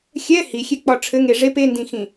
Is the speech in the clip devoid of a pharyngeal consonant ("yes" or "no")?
yes